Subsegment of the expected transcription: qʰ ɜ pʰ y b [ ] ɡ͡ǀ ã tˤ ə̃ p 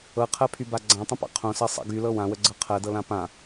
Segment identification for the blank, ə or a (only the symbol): a